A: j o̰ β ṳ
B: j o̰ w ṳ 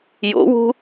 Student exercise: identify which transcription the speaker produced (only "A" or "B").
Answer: B